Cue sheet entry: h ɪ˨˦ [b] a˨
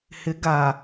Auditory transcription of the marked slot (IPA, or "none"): ɡ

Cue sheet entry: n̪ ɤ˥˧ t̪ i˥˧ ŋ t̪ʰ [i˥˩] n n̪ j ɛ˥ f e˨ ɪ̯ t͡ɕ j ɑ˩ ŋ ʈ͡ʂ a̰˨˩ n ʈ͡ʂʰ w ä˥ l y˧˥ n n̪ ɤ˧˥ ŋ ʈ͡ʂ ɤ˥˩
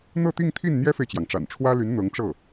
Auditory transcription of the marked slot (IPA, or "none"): i˥˩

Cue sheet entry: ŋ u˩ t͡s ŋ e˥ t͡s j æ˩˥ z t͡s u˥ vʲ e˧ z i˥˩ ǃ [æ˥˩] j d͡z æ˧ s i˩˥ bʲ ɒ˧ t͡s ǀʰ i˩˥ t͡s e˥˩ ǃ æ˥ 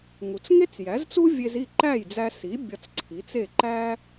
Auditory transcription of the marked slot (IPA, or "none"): æ˥˩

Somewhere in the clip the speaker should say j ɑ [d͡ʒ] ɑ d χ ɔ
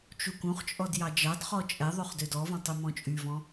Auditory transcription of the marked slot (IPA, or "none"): d͡ʒ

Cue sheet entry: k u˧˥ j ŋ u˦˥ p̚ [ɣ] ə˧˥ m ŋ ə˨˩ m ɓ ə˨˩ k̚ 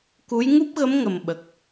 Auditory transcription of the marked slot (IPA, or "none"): ɣ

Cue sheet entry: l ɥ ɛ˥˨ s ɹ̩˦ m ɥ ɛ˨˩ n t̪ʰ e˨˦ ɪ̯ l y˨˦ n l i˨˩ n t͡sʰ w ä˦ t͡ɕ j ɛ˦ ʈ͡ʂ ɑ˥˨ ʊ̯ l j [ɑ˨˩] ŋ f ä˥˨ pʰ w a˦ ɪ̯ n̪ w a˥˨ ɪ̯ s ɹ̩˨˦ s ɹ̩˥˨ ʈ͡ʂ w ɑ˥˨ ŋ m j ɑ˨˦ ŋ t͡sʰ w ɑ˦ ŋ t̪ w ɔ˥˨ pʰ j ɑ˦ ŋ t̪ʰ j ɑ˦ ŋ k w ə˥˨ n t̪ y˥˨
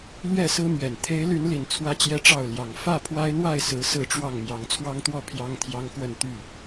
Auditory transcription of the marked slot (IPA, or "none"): ɑ˨˩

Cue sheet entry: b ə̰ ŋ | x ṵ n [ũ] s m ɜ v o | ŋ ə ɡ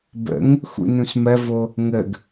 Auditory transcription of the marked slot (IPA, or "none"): ũ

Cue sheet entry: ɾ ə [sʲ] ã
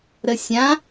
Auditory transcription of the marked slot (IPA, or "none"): sʲ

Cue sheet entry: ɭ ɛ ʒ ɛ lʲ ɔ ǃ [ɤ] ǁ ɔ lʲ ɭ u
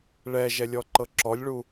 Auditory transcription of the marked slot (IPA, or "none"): ɤ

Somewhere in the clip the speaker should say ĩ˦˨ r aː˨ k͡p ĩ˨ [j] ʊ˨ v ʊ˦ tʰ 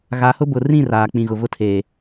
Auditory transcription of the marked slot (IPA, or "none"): ɣ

